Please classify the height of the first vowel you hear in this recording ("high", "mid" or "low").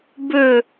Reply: mid